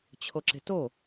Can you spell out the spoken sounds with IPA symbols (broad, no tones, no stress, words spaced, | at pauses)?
t͡ɕʰoǁe̤to